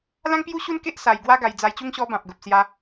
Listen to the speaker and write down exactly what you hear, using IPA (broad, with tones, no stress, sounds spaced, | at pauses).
l ã˦ ŋ p j u˦ ɕ u˦ n k e˦ ʔ s a˧ j ɡ w a˦ ɡ a˧ j d͡z a˧ j t͡ɕ u˦ ŋ ɕ ɔ˧ b ã˨ p̚ ɡ ə˨ p̚ s j a˧